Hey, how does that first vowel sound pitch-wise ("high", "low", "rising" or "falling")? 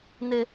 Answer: high